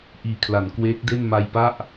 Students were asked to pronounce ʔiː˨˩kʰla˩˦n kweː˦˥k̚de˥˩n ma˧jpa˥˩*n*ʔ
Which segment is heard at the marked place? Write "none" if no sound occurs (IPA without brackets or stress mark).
none